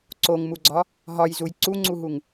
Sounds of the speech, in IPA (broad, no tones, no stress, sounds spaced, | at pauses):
ǀ o ŋ m u ɡ͡ǀ ɒ | ɦ ɒ j z u j ǀ u ŋ͡ǀ u ɦ u ŋ